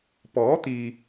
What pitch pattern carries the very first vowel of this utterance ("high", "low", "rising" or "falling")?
rising